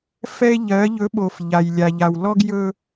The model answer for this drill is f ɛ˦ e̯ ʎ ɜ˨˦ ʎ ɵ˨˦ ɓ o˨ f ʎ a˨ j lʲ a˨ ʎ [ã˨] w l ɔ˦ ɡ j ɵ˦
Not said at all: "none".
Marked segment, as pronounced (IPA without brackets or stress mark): a˨